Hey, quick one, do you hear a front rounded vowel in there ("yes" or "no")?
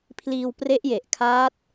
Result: no